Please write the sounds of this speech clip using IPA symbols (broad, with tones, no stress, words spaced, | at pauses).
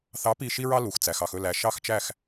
θɑ˨˥pi˧˩ ʃi˦ɹɑ˦ lu˩xt͡sæ˩xɑ˧˩x ɵ˧˩læ˩ʃɑ˧˩xt͡ʃæ˧˩x